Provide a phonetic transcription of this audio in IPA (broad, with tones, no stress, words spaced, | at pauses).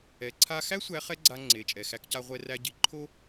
ɛ˩˧ǀʰa˧xæ˥ sʷæ˧˥χɛ˥ɡ͡ǀa˧ ŋ͡ǀe˩˧t͡ʃʼɛ˩ xæ˧kca˧ ʁʷɛ˧ræ˧ɟi˩˧ ǃʰo˥